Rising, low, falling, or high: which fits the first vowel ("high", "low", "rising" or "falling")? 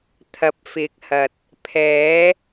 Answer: low